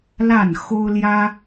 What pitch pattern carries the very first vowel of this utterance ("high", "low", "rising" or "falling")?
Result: falling